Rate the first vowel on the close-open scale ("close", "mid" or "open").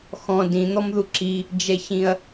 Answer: mid